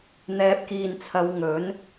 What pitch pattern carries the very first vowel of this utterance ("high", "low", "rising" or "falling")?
rising